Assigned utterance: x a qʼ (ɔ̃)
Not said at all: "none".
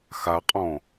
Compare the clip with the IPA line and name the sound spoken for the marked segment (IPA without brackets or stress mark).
ɔ̃